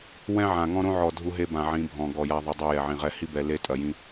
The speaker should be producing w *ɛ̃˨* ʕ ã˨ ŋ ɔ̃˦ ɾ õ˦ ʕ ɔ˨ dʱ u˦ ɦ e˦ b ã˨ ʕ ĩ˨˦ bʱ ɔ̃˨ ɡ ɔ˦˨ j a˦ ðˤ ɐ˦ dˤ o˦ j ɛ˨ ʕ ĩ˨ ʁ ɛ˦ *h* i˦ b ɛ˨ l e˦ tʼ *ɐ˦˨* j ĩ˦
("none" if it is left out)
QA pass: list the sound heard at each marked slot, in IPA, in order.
ɛ̃˦, h, ɐ˨

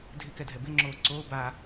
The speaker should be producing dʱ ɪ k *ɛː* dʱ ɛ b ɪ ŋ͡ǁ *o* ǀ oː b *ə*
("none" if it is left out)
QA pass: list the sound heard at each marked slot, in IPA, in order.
ɛ, oː, a

